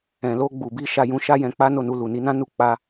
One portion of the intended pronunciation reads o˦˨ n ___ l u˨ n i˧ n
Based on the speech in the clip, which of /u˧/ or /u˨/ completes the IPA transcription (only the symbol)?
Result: u˧